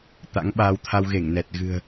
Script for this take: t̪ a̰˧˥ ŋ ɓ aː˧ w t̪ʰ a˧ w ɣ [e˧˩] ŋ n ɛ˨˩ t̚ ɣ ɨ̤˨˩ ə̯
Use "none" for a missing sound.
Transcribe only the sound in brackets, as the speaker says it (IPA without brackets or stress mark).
e˧˩